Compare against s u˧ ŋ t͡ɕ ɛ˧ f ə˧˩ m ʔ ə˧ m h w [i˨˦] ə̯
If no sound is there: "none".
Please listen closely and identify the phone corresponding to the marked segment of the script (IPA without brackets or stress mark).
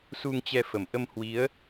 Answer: i˨˦